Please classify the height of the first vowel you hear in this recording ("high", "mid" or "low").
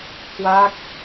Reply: low